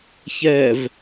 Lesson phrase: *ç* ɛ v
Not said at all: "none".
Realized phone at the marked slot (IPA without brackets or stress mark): ç